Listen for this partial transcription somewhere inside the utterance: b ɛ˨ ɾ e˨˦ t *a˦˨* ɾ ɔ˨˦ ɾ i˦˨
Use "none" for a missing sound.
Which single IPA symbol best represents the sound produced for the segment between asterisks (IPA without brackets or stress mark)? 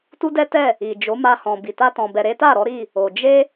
a˦˨